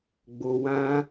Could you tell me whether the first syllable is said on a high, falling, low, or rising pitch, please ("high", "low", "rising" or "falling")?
low